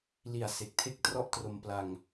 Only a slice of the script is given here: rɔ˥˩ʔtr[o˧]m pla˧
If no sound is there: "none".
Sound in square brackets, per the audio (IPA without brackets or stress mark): o˧